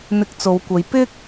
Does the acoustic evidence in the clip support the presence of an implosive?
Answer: no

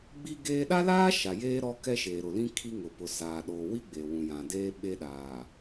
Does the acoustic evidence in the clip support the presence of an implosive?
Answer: yes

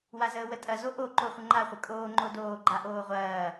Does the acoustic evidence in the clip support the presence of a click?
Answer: yes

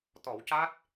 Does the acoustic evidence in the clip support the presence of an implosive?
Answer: no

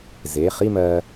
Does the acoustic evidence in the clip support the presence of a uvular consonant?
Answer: yes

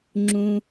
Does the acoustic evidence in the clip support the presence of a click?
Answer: yes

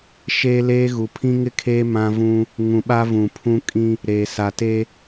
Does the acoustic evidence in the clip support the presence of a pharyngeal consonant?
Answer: no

